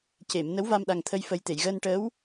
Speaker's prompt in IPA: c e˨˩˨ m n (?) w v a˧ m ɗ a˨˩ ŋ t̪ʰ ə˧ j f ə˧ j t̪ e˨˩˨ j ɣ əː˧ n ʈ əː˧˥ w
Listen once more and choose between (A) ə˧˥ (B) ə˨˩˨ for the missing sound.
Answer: A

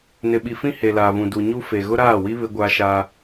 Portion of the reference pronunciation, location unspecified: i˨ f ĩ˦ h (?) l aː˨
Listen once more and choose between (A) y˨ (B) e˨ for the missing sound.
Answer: B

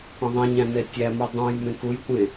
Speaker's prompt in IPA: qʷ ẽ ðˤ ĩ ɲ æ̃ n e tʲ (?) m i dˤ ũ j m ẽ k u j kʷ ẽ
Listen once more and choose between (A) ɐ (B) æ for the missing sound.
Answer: B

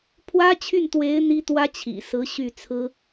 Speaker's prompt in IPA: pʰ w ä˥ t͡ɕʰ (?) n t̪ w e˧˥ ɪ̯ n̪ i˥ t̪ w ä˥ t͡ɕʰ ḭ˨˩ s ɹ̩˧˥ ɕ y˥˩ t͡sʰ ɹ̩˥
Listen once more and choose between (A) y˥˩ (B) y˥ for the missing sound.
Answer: A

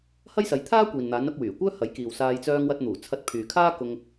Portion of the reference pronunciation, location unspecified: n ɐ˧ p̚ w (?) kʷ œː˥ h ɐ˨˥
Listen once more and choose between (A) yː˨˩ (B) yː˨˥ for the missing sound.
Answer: A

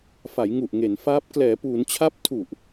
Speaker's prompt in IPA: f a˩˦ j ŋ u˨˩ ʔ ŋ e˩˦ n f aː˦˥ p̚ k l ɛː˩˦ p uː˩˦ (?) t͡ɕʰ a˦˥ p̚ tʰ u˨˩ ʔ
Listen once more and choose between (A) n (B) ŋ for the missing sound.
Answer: A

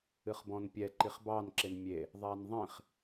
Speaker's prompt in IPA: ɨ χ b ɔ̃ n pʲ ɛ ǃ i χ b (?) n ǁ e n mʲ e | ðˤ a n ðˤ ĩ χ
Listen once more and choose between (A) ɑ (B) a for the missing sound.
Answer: A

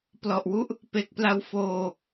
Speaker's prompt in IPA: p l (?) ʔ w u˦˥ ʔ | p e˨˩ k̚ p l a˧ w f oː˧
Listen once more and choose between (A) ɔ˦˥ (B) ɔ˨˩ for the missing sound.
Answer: B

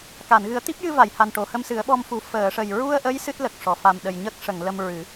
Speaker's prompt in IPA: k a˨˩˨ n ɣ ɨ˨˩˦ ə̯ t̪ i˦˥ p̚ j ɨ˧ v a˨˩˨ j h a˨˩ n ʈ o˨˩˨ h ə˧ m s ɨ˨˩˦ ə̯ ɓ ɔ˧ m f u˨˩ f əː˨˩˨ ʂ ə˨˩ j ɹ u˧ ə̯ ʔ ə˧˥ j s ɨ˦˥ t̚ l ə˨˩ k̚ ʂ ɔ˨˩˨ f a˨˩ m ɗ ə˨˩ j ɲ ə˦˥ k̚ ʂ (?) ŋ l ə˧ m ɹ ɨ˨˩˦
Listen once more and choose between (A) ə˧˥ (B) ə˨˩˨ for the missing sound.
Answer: B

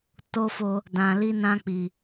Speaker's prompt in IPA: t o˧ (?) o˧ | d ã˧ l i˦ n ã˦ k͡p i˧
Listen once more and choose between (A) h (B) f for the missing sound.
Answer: B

